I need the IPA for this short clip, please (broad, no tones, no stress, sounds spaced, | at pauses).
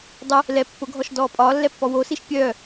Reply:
dˤ ɯ | l ɛ pː ʊ ɡʱ ɔ ʃ d ɔː pʼ ɒː lː ɛ pː ɔ w o s i ʃ pʲ œː